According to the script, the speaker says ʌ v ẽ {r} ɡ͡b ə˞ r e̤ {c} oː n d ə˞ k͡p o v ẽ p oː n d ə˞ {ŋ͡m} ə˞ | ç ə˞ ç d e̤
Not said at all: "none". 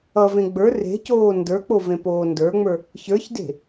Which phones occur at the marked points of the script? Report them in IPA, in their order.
none, c, ŋ͡m

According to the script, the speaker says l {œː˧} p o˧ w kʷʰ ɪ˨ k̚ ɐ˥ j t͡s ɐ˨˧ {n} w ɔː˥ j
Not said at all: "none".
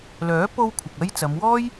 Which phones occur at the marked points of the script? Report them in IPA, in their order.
œː˨˥, m

